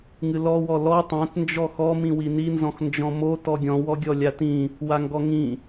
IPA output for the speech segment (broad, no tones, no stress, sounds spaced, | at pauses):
ŋ ɨ l ɔ w ɔ l ɔ tˤ ã t n d͡ʒ ɔ x ɔ m ĩ w i n i n z ɔ̃ x n d͡ʒ ɔ̃ m o t ɔ ɡʲ ɔ̃ w ɔ ɡʲ ɔ lʲ a t ĩ | w a ŋ ɡ ɔ ŋ ĩ